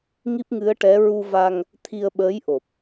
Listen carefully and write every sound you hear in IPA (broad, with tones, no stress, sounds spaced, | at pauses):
ŋ i˦˥ p̚ ŋ ɨ˧˥ ə̯ ʈ ɛ˧˥ ɹ u˧ v a˧ ŋ | t̪ʰ i˧ ə̯ ɓ əː˧˥ j ʔ o˨˩ p̚